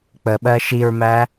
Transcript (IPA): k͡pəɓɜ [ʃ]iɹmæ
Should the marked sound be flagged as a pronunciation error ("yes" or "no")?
no